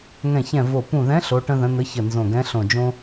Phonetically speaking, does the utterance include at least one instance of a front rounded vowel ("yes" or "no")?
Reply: no